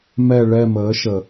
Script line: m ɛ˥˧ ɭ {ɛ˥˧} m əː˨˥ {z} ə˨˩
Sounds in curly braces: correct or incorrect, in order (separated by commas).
correct, incorrect